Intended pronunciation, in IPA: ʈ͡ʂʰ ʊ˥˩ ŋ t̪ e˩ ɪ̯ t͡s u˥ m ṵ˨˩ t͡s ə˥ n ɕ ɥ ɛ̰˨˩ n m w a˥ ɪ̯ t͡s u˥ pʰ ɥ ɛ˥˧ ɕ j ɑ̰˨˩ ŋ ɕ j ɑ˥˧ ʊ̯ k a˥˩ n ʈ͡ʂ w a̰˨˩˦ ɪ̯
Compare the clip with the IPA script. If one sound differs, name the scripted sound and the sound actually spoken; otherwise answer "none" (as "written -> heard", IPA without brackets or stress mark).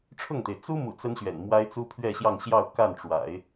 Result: ɑ̰˨˩ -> ɑ˥˧